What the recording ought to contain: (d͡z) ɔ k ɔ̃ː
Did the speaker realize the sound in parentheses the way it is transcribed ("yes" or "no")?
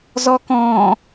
no